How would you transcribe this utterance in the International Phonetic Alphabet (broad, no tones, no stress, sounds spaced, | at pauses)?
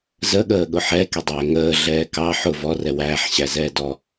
z ə ɠ əː ɠ ʊ ħ ɛ k ɛ dˤ ɛː ŋ əː ɮ ɛː k ɑ ħ ʊ v ɔ r ɛ w æː ħ ɕ æ z ɛː d ɔ